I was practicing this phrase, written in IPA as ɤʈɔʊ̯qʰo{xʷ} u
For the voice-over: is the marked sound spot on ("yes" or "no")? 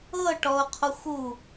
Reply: yes